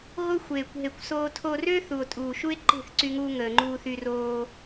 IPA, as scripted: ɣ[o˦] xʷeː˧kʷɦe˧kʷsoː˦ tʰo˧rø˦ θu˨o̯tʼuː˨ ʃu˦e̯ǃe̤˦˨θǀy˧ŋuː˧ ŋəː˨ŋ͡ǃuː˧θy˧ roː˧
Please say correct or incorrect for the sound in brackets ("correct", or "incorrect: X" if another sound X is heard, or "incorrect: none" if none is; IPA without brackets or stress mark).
correct